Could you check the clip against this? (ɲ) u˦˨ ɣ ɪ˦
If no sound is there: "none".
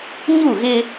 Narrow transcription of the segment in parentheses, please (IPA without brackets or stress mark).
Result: ɲ